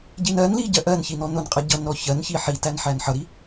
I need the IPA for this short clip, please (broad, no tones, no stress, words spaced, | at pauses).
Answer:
ɟinɜnli ɟɜʔɜnçi nɔnʊnqʼʌ ɟʌnɾɔ çɜn çiħitæn ħænħʌɾi